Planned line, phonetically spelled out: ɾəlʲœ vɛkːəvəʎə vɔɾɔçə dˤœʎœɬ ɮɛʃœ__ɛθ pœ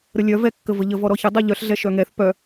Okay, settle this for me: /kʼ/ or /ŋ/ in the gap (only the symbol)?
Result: ŋ